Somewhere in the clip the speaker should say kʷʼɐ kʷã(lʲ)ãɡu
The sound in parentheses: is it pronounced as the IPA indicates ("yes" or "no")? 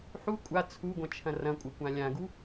yes